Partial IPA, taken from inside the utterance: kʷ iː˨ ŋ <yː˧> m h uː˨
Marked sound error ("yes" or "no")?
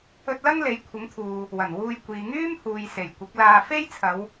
yes